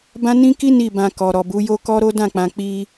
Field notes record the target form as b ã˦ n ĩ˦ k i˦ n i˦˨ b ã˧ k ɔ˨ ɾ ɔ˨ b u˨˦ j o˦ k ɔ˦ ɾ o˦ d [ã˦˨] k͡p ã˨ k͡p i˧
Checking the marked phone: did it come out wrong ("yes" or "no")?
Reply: no